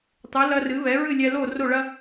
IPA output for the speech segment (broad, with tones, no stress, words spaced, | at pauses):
tˤɨ˩˥ lɐ˧rɨ˩˥ βɛ˩˥ɹɨ˥˩lʲɛ˧ lo˥˩ro˥˩ɭɐ˥